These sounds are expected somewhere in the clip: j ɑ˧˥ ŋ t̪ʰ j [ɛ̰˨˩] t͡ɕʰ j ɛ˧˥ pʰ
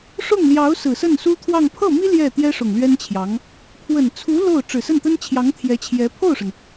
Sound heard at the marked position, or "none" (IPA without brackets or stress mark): ɛ˧˥